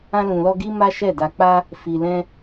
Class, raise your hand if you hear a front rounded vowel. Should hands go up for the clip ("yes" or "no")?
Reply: no